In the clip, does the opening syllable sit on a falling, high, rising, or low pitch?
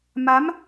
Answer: rising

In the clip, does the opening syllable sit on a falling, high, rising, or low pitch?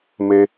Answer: high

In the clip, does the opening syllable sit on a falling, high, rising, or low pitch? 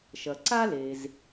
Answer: low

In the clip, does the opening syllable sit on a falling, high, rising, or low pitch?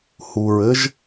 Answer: low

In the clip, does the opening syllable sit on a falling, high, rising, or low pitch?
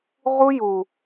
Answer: high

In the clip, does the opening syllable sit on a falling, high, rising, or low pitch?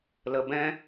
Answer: low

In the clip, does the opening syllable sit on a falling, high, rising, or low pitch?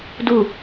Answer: falling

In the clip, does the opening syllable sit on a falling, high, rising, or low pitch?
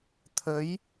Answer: rising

